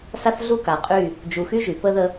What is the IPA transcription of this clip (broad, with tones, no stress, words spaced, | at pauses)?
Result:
sa˦θɮu˦ka˨qʼy˦˨ | d͡ʒu˨xy˦ʒy˨pə˦ ðə˦